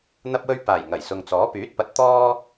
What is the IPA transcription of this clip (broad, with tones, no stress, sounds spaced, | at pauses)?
n̪ ɐ˥ p̚ w ɵ˥ ɥ p aː˨˩ j ŋ ɐ˨˩ j s ʊ˨ ŋ t͡s ɔː˨˥ p yː˨˥ t̚ p ɐ˨ t̚ t̪ ɔː˥